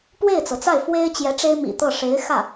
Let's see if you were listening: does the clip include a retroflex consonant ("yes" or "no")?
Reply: yes